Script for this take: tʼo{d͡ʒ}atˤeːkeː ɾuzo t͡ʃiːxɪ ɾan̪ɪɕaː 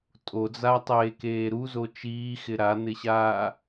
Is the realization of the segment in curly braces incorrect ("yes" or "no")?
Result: yes